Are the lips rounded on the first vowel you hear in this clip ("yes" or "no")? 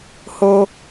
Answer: yes